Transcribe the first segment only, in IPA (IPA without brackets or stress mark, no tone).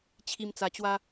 t͡ɕʰ